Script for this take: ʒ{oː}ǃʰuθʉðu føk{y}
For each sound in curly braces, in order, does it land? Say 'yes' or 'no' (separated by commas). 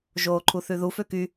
yes, yes